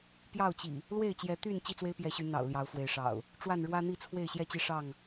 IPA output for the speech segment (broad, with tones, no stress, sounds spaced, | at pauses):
p j ɑ˥˨ ʊ̯ t͡ɕ ḭ˨˩ | l w e˥˨ ɪ̯ t͡ɕ j ɛ˨˦ t̪ y˥˨ n t͡ɕ i˥˨ t͡s w e˦ ɪ̯ p j ɛ˨˦ ɕ y˨˦ n̪ ɑ̰˨˩ ʊ̯ l j ɑ˨˦ ʊ̯ f w e˨˦ ɪ̯ ʂ ɑ̰˨˩ ʊ̯ | ʈ͡ʂ w a˥˨ n ɻ w ä˦ n̪ i˥˨ t͡sʰ w e˥˨ ɪ̯ ɕ j ɛ˥˨ t͡ɕ i˦ ʂ ɑ˥˨ ŋ